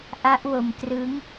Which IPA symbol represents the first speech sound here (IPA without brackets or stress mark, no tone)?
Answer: ʔ